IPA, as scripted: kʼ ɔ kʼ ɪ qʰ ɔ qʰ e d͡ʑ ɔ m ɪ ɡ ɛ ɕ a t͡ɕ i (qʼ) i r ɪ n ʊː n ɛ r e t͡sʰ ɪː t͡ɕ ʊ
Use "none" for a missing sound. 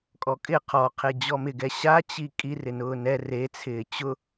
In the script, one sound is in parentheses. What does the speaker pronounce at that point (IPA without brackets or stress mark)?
kʼ